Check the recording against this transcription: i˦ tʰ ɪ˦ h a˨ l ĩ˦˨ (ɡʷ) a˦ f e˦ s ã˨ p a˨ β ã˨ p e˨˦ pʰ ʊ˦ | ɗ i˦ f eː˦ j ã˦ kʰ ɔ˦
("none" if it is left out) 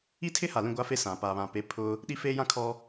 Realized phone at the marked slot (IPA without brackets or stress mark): ɡʷ